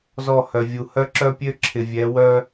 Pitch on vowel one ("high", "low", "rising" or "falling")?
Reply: falling